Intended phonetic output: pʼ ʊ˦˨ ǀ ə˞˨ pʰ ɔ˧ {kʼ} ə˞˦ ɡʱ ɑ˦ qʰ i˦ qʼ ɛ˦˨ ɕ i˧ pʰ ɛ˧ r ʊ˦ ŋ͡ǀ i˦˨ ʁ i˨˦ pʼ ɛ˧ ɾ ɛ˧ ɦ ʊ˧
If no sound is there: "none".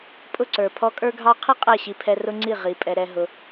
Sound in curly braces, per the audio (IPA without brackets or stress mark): kʼ